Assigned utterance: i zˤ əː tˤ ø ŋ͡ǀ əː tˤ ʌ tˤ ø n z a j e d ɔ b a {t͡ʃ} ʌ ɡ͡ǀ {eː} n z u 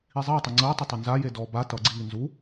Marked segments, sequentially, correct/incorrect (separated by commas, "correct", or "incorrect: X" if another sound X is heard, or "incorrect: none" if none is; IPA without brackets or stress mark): incorrect: t, incorrect: iː